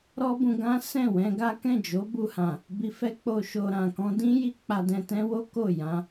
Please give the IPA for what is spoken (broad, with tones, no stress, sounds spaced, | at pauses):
ɾ ɔ˦ b ũ˧ ɡ ã˦ s ɛ̃˦˨ w ɛ̃˧ ɡ a˦ k ɛ̃˦˨ d͡ʒ o˨˦ b u˧ h ã˨ | b i˧ f ɛ˦ k͡p o˧ ʃ o˧ ɾ ã˨ k ɔ̃˧ d ĩ˦ j i˦ k͡p a˧ d ɛ̃˧ t ɛ̃˦ w o˦ k o˦˨ j ã˧